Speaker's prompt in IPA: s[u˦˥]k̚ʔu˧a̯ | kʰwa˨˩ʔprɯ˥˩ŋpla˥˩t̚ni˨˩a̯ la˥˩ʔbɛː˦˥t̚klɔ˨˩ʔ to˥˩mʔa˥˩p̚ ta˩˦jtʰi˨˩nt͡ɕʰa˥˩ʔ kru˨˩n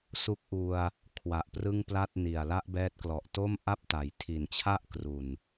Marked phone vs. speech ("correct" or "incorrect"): correct